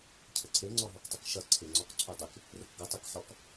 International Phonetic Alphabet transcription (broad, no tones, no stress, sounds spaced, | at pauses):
cʰ ə ǀʰ e ŋ͡ǀ ɔ ɦ ɔ k tˤ ə k ʃ ʌ ǀʰ e ŋ͡ǀ ɔ k ǀʰ u dˤ e k | r ə k ɡ ʌ tˤ e k ħ ɔ k